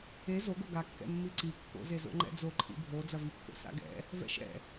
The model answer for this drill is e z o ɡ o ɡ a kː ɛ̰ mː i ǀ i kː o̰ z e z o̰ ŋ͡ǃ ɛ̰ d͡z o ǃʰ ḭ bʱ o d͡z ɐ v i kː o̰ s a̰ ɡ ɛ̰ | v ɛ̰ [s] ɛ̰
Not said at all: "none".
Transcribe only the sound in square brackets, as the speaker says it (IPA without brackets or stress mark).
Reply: ʃ